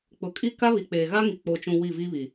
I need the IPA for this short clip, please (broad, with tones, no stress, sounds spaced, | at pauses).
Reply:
k͡p ʊ˨ kʼ i˦ k a˦ β i˨ k͡p eː˨ ɣ a˦ ŋ i˨ k͡p o˨ t͡ʃ ũ˨ w i˦˨ v iː˦ β i˨